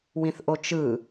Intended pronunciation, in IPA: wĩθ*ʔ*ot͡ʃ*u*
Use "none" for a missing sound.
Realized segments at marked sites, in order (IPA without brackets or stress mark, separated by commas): ʔ, ɯ